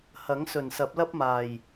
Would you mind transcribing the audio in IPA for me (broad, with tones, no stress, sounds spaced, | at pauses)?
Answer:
h ɐ˨˥ ŋ s ɵ˨˩ n s ɐ˨˥ p̚ l ɐ˥ p̚ m aː˨˩ j